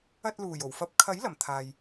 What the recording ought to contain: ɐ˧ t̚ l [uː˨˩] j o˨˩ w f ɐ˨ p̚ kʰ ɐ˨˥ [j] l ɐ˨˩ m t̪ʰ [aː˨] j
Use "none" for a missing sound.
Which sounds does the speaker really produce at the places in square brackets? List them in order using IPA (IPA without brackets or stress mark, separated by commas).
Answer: uː˨˩, j, aː˨